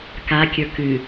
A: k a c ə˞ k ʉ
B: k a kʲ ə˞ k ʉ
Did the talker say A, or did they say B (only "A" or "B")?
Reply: B